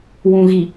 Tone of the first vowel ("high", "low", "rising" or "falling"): low